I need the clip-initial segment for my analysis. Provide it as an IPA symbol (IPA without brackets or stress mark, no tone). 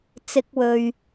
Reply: t͡s